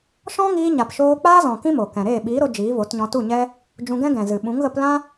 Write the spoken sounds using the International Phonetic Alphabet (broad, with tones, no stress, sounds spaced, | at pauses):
ʃ ɔ̃˦ ŋ iː˧ ɲ a˨ p ʃ oː˧ k͡p aː˦ z ɔ̃˨ k ĩ˦ m o˨ k ɛ̃˨ ɾ eː˦˨ ɓ iː˨˦ ɾ o˧ d͡ʒ iː˨˦ v o˨˦ t ɲ ɔ̃˧ t u˦˨ ɲ ɛ˦ | d͡ʒ ũ˧ ɡ ɛ̃˦ ɡ ɛ̃˨ z ɨ˨ ɓ ũ˨˦ ŋ ɣ ə˧ p l ã˦